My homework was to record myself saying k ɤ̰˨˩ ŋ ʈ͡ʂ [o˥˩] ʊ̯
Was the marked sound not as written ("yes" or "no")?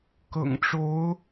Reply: yes